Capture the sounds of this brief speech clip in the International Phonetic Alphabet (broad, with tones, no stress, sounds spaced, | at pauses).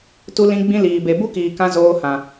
t u˧ l ĩ˧ ɡ͡b ĩ˧ l iː˨ b e˨ b u˦ k iː˨ k ã˧ z oː˧ h ã˨